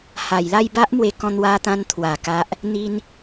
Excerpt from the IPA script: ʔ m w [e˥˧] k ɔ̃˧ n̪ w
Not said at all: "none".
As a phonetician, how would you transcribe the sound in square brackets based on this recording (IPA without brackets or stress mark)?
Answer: e˧